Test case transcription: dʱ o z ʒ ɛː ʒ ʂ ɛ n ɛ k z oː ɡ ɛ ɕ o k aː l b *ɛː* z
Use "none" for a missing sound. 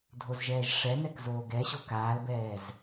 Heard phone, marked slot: ɛː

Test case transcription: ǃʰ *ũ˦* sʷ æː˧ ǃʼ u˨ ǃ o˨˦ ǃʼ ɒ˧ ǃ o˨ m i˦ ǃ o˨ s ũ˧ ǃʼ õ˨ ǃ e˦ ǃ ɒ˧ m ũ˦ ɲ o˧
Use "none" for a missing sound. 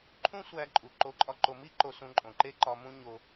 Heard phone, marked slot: ũ˦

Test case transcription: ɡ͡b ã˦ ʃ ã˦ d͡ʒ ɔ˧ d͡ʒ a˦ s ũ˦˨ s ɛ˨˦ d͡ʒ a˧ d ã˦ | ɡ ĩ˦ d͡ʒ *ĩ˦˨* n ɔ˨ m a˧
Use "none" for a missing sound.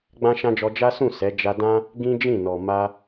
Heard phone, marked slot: ĩ˦˨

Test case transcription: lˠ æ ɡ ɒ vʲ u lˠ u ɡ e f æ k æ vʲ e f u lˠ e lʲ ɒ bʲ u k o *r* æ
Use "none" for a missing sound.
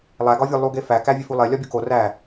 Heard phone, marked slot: r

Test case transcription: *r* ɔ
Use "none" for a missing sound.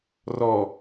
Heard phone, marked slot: r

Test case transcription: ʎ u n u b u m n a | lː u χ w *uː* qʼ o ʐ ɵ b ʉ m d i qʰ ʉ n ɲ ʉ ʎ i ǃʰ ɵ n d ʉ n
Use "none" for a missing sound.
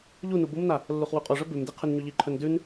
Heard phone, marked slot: u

